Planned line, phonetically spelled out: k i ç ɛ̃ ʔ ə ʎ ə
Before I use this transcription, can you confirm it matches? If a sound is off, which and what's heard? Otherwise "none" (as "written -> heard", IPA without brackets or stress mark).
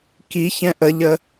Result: none